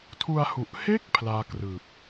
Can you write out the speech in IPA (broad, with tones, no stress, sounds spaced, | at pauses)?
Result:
tʰ u˧ a̯ h u˨˩ ʔ h e˥˩ k̚ pʰ l aː˦˥ k r ɯː˨˩ p̚